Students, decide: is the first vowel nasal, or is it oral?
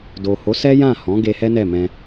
oral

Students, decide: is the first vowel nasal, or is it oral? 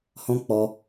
nasal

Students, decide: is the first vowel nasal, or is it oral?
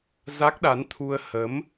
oral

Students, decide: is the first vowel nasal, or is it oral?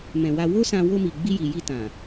nasal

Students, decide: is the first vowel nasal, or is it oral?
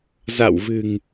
oral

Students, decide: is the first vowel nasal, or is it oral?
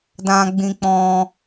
nasal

